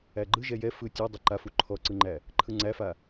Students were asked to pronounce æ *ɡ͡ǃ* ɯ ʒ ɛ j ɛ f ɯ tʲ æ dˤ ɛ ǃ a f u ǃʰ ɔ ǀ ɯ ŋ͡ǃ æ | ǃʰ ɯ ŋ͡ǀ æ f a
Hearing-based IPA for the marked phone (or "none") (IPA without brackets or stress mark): ɡ͡ǃ